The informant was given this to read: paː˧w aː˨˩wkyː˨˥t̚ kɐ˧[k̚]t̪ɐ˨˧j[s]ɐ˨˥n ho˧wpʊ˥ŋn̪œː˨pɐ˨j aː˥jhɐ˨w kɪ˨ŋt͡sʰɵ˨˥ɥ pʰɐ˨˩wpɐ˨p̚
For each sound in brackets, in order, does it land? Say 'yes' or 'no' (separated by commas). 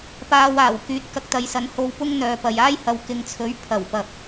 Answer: yes, yes